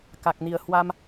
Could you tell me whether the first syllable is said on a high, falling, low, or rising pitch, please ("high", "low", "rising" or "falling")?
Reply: low